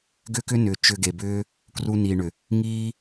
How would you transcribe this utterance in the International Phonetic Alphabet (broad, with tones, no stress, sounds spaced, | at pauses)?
ɡ ʏ˦ k ʏ˦ n ʏː˨ t͡ʃ ʏ˧ ɡ e˨ b ʏː˦ | k r u˧ n iː˨ ɳ ʏ˨ | ŋ iː˦